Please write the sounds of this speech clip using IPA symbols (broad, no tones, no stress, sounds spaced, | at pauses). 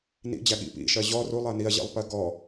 n ḭ d͡ʑ æ ɠ ḭ p ḭ ʃ ɜ ʑ ɔ r u lˠ ɜ n i ɐ̯ ʑ ḭ lˠ p ɜ ɡ ɔ